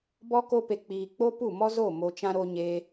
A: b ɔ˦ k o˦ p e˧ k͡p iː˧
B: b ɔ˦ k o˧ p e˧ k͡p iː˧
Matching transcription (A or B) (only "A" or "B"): A